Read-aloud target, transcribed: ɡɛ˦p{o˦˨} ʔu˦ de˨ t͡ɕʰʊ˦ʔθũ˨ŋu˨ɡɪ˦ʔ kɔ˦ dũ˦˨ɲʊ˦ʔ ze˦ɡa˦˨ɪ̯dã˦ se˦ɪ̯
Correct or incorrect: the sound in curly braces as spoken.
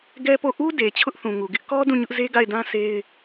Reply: correct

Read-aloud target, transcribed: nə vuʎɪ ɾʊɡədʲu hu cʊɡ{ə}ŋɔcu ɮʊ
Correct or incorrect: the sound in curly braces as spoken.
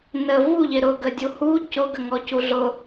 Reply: correct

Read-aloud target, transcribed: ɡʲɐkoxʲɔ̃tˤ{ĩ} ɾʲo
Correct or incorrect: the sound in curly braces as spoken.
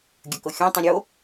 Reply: correct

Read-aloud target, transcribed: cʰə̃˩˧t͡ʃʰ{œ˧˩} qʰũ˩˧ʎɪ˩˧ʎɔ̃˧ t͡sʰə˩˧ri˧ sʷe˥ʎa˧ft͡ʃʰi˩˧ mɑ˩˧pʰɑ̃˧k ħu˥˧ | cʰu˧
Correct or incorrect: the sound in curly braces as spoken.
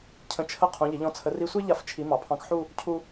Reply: incorrect: ə˧˩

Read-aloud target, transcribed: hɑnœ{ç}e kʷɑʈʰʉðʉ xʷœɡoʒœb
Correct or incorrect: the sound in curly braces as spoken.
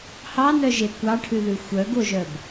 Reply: incorrect: ʒ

